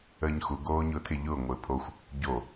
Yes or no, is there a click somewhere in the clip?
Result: no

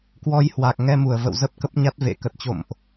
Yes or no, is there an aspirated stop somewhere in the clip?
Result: no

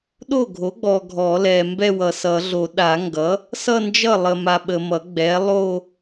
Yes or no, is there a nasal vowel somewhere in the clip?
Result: no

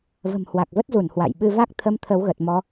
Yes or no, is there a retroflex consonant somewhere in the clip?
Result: no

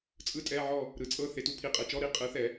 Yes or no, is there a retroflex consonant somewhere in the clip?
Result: no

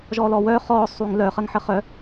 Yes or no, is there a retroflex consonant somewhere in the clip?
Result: no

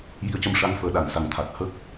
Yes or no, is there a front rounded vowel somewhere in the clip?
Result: no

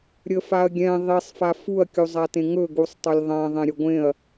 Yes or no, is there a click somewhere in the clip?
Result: no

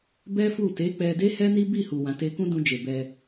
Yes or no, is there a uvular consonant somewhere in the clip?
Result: no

